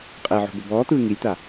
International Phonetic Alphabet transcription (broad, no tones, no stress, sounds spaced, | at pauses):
qʼ ɛ ʕ o̤ b o b ɔː t̪ ɯː ŋ i lʲ t̪ a